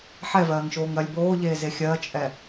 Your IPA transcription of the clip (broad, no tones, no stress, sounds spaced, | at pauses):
ħ ɛ v ɜː ŋ ʃ oː ŋ ɜ lʲ b oː ʎ eː z e xʲ ɜ t͡ʃʼ ɛ